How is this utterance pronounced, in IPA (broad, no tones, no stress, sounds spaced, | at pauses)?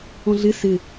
ɔ̃ ɮ ɪ s ɪ